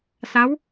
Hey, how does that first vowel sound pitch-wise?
rising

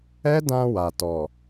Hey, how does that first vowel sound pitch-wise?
high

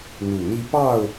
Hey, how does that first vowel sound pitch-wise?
low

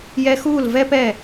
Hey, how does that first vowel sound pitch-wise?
high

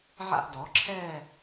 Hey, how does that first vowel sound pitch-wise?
falling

